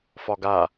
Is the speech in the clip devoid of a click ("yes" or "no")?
yes